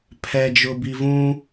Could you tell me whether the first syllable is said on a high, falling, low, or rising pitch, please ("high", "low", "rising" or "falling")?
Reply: low